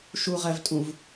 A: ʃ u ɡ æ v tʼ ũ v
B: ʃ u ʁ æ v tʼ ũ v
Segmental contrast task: B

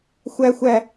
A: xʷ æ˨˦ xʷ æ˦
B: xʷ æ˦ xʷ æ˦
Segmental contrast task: B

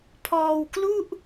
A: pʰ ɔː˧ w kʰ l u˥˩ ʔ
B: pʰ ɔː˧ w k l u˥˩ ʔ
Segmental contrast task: B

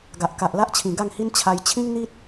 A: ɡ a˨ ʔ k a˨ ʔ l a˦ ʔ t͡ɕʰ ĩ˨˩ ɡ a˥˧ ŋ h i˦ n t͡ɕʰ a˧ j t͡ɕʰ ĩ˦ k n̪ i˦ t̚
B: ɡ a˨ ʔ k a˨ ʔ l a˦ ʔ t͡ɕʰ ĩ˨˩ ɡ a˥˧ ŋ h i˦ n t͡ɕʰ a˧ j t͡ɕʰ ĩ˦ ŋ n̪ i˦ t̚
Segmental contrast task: B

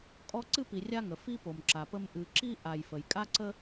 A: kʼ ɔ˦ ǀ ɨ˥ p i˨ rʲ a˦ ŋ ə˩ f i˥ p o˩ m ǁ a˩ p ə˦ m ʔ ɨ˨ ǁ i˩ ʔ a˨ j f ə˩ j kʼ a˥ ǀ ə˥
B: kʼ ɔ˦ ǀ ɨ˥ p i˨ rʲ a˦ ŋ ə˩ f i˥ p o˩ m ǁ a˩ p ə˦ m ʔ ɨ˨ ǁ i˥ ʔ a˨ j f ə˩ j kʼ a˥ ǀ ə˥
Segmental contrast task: B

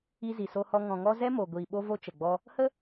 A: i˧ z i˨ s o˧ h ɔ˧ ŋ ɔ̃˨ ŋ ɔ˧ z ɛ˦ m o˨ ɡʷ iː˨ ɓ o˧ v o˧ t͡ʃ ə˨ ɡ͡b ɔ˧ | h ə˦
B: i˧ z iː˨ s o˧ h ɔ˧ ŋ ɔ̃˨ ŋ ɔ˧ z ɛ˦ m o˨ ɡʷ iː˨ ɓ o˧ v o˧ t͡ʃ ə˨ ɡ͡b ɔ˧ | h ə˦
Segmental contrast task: A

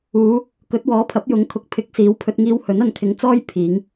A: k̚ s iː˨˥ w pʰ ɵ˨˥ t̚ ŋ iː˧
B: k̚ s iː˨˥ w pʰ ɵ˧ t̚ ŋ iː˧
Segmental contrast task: B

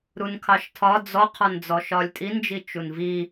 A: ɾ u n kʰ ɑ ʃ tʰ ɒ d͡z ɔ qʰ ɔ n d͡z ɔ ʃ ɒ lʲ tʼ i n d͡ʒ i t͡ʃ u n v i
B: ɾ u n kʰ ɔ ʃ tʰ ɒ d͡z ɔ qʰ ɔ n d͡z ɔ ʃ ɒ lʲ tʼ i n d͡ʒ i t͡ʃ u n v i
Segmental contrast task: A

